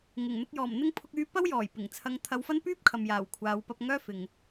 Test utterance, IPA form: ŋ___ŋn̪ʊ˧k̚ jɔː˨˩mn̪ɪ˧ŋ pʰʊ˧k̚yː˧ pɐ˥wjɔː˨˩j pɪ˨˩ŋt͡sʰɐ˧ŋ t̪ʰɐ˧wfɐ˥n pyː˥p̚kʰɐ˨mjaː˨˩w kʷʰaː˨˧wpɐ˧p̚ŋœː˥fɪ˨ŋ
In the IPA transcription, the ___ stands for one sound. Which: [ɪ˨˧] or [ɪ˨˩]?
ɪ˨˩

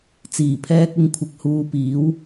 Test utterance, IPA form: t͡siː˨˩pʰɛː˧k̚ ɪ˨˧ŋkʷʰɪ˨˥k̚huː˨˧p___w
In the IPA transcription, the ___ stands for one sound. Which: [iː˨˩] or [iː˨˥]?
iː˨˥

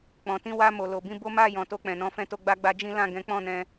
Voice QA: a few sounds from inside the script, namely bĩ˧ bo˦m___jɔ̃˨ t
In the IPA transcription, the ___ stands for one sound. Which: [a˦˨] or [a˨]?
a˦˨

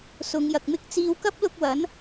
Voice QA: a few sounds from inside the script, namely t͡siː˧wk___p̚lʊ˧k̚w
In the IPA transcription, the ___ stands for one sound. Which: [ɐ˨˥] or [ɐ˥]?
ɐ˥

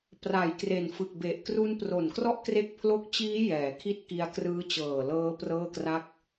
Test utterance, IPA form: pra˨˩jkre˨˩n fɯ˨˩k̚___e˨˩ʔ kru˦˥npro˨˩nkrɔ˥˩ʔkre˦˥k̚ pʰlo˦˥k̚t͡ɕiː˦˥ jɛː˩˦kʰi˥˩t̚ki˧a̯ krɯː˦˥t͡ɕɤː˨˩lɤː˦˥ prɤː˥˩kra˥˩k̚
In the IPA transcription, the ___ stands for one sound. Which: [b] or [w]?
b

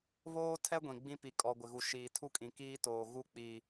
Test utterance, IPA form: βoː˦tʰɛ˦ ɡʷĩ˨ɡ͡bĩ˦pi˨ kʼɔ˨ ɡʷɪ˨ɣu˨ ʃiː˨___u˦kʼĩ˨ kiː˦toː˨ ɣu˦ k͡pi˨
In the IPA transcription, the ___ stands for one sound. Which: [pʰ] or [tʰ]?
tʰ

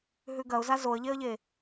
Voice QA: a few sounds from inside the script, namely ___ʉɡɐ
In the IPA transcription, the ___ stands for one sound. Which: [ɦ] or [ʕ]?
ɦ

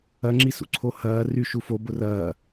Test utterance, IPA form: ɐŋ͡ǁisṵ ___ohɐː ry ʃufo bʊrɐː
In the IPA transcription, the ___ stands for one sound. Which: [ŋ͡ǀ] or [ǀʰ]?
ǀʰ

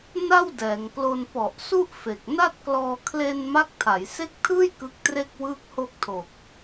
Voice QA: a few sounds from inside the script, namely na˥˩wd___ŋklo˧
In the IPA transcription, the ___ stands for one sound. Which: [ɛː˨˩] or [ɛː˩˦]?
ɛː˩˦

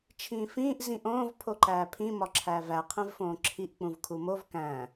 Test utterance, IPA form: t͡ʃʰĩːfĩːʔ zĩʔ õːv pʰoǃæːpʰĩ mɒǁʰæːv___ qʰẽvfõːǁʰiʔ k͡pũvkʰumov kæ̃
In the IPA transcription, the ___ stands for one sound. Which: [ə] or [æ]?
æ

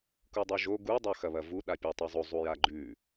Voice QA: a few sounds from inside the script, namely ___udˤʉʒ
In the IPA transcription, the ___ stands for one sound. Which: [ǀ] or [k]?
k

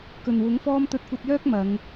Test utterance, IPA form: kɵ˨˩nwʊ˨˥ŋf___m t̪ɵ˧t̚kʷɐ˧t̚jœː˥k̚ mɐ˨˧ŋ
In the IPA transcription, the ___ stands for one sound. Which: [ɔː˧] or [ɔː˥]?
ɔː˥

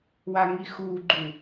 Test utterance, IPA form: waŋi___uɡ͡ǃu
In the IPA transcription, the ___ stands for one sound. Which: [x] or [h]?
x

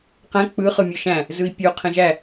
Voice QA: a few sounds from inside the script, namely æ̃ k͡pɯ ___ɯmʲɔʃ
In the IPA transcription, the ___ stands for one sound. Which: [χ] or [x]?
χ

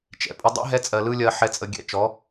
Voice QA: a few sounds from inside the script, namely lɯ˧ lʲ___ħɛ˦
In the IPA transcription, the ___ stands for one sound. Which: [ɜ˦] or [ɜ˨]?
ɜ˦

